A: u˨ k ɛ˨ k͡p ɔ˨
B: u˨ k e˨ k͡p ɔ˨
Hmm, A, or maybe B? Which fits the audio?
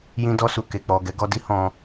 B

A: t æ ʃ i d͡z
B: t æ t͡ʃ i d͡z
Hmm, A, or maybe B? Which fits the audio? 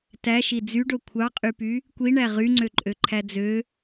A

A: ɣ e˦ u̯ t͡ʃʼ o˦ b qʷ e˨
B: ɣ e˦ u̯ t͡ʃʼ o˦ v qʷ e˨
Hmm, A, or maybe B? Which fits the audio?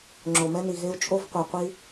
B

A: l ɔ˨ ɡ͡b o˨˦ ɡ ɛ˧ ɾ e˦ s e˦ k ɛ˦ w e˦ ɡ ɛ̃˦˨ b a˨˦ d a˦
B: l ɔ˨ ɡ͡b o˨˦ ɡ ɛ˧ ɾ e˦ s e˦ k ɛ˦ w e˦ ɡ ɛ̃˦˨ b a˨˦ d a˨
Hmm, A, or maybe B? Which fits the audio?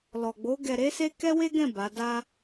A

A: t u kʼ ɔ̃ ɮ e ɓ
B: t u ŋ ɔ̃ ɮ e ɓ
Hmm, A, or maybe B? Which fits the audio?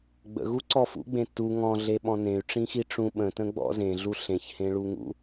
B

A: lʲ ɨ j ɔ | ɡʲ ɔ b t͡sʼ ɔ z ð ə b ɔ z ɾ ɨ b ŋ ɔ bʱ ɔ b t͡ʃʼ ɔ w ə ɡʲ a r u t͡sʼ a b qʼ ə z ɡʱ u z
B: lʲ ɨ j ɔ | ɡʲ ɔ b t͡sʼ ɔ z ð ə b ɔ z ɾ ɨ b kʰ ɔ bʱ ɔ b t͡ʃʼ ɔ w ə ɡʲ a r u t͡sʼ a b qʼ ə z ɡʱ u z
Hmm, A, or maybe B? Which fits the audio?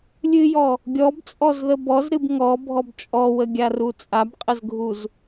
A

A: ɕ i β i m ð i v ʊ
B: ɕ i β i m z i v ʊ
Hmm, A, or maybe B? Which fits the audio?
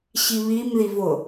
A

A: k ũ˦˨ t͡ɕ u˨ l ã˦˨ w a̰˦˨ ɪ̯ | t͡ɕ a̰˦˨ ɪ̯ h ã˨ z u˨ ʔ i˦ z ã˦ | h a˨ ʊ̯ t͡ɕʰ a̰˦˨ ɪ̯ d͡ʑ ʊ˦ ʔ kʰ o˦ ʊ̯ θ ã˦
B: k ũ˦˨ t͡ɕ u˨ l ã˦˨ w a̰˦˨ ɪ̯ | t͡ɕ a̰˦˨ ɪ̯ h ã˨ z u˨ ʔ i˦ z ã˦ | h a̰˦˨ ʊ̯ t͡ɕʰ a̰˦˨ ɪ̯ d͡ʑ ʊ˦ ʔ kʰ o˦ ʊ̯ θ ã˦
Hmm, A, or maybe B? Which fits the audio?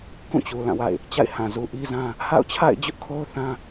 B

